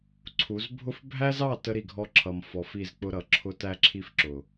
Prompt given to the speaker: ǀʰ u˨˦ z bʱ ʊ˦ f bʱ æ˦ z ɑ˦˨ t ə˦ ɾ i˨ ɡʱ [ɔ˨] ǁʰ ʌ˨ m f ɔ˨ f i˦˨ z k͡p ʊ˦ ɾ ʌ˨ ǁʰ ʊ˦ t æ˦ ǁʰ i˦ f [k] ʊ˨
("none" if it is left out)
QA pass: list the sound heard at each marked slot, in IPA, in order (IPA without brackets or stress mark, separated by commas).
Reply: ɔ˦, ǁ